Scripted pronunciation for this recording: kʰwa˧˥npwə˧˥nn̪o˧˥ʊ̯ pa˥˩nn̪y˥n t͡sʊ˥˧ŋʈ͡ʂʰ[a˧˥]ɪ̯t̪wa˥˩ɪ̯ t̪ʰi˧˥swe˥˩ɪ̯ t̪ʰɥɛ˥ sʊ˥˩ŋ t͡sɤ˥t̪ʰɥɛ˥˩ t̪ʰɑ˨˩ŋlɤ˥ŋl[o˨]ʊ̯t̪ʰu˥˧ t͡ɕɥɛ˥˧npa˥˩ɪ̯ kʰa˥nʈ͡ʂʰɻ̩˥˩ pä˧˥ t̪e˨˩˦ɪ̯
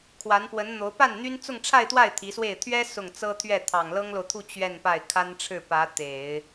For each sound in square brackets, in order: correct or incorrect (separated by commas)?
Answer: incorrect, correct